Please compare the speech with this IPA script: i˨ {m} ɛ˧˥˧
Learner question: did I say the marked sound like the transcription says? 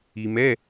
yes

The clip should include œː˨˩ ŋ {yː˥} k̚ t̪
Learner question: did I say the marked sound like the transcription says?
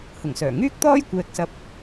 yes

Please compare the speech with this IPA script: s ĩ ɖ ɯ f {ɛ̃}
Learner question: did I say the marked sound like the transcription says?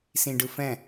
yes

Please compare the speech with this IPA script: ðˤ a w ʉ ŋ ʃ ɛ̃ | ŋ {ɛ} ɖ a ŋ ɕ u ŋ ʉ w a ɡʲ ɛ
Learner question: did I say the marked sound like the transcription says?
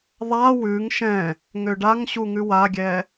no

